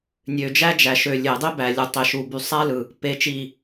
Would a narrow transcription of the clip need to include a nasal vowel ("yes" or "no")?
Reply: no